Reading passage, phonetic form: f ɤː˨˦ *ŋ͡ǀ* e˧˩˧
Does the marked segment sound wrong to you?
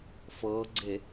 yes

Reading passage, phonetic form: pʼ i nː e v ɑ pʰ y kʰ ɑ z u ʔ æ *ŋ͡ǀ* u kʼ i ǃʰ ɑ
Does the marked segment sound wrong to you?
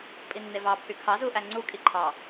no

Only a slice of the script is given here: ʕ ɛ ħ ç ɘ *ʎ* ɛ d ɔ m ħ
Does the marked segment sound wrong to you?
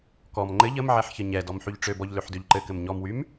yes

